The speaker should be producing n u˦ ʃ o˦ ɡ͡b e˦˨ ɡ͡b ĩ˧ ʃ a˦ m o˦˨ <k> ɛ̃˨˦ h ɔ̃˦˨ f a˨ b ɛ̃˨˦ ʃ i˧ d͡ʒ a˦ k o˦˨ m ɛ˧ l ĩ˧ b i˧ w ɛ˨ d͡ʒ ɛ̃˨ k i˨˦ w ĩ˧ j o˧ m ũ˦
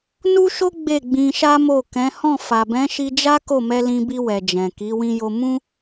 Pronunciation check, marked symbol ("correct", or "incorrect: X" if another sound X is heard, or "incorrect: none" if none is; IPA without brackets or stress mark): correct